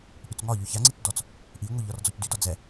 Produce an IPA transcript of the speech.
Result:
ʔ y t͡s ŋ ɒ ʎ y ç a ŋ͡ǀ i t͡s d ɔ t͡s | ʔ i ŋʷ i ʎ ɒ r d͡z ɔ c d y d ɒ d͡z ɛ

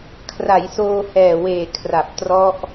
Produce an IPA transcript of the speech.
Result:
kʰ r a˩˦ j s oː˧ h ɛː˨˩ w eː˨˩ kʰ r a˨˩ p̚ t r ɔ˦˥ ʔ

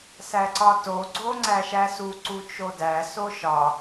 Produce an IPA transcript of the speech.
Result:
s æ ǀ ɒ t o ɡ͡ǀ o ŋ͡ǀ æ ʃ æ s u ǀ u t͡ʃ o d æ s o ʃ ɒ

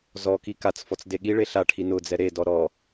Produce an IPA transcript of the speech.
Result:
z ɔ k i k a t͡s f ɔ t͡s d e ɠ i ɭ e ɬ a ʈʰ i n ʊ d͡z ɛ ɾ e d ɔ ɾ ɔ

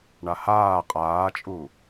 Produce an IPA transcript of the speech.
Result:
ɳ a h aː qʼ aː t͡ʃʼ u

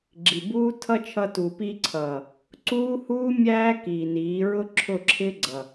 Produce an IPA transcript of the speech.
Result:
ɡ͡ǁ i˨ b uː˦ tʰ ʌ˦ t͡ʃʰ ʌ˧ t u˨ p i˧ ǀʰ ʌː˨ | ǀ uː˦ h uː˦ mʲ æː˦ k iː˨ n iː˨˦ ɹ ʊ˦ ǁʰ ʊ˦˨ ǁʰ ɪ˦ ɡ͡ǀ ʌ˨

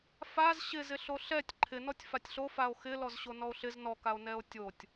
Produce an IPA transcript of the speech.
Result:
f a z ɕ ɪ z ɪ ɬ o ɬ ɛ tʲ ǃʰ ɪ n ɔ tʲ f a tʲ ɬ o f a o̯ x ɪ l ɔ z ɕ o n ɔ o̯ ɬ ɪ z n ɔ k a o̯ n ɛ o̯ tʲ o tʲ

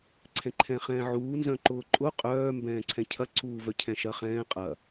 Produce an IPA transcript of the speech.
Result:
ǀʰ ɛ̃ ǃʰ ɛ̃ χ ɛ̃ː ʕ uː n z œ̃ ǃ ʊː ǃʼ ʊ qʼ œː m b ɛ̃ː ǀʰ ɛ̃ cʰ ɐ ǀ uː v œ cʰ ɛ̃ ʃ ɐ χ ɛ̃ː qʼ ɐ

